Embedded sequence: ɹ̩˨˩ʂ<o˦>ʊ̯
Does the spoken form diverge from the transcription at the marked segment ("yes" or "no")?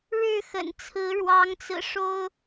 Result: no